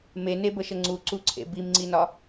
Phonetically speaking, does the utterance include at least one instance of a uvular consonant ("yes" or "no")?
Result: no